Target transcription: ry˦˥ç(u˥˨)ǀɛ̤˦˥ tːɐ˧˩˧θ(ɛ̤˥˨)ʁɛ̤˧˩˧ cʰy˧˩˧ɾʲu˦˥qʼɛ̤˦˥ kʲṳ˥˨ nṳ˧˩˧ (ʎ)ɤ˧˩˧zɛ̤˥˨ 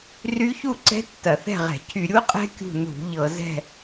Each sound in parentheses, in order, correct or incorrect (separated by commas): correct, correct, correct